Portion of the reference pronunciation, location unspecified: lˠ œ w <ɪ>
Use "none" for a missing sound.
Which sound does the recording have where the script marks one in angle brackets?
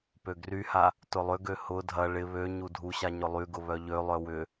ʏ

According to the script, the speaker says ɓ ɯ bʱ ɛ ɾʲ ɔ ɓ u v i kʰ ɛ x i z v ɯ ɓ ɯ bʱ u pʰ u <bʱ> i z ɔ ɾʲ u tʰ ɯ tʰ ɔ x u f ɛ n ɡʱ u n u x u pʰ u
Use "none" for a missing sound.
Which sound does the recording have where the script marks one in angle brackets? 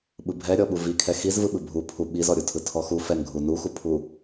ɓ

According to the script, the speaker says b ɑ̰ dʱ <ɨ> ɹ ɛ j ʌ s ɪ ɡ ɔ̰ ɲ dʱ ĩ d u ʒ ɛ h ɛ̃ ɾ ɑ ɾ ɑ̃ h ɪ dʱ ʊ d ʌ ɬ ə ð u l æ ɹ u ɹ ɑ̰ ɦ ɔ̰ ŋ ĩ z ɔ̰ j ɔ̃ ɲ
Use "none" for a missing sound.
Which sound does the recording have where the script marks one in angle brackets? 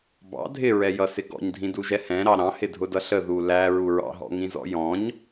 ɪ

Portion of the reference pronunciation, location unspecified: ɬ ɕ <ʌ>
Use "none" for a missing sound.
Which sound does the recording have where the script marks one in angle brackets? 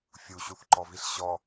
ɔ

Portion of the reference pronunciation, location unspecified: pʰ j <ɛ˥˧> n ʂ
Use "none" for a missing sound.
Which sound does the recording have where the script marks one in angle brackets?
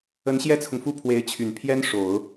ɛ˥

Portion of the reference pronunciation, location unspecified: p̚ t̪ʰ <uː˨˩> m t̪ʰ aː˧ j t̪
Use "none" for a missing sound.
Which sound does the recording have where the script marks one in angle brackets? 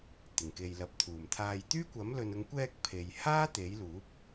uː˨˩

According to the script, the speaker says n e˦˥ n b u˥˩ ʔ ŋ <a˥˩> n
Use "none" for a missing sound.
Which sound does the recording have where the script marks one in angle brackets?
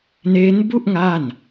a˥˩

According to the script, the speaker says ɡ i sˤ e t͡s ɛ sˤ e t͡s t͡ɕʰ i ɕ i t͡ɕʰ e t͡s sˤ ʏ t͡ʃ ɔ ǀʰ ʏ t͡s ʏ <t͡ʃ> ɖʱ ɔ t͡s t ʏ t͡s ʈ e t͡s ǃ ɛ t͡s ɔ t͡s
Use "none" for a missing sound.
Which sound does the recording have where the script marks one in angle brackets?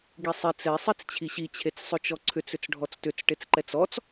t͡s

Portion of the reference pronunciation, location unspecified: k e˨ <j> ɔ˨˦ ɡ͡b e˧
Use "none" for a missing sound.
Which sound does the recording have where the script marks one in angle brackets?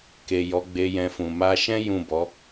j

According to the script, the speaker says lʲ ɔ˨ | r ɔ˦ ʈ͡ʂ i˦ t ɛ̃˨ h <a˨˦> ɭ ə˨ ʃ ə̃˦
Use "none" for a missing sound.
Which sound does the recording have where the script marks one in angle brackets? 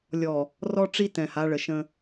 a˨˦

